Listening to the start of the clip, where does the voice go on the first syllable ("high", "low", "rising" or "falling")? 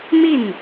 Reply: falling